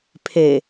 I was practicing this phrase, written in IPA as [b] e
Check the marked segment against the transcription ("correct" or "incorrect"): incorrect